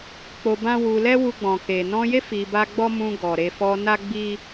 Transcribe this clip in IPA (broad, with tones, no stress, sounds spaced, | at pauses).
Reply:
k͡p o˧ b ã˦ w u˧ l ɛ˦ w u˧ ɡ͡b ɔ̃˨ k e˨ n ɔ̃˧ j e˦ f i˧ b a˦ ɡ͡b ɔ˦ m ũ˧ ɡ ɔ˨ ɾ e˧ f ɔ˧ n a˦ ɡ͡b i˦